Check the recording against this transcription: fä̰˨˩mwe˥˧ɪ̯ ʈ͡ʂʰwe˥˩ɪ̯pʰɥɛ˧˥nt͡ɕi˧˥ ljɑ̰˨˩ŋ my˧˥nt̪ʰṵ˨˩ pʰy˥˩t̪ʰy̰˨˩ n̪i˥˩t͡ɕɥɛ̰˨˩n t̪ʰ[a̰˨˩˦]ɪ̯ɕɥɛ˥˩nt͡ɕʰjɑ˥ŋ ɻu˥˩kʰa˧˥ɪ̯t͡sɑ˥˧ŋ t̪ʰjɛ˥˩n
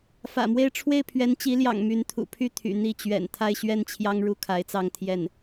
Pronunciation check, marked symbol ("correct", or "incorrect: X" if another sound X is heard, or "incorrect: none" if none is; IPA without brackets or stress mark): incorrect: a˥˧